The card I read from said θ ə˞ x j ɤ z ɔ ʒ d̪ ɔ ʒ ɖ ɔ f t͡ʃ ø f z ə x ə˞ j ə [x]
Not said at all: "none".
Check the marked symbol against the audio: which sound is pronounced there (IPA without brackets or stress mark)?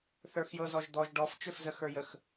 x